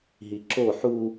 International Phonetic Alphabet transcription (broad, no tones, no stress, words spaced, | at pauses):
ɦiǁo ħu